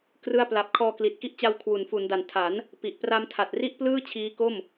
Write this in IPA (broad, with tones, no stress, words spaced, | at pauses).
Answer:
krɯ˥˩a̯pla˦˥p̚ kʰɔː˧kli˨˩t̚ki˦˥ʔt͡ɕa˧w kʰwu˩˦nfu˩˦nda˨˩n tʰa˩˦n | pi˨˩ʔpra˧mtʰa˨˩t̚ ri˥˩ʔplɯː˥˩t͡ɕʰiː˦˥ko˥˩m